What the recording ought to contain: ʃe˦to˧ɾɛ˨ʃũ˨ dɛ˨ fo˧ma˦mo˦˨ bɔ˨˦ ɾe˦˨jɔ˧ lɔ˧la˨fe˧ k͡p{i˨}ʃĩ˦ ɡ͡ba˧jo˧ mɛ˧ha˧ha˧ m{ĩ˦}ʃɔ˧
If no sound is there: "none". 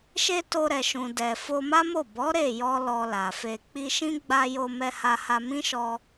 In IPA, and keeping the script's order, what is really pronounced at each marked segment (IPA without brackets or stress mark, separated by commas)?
i˧, ĩ˦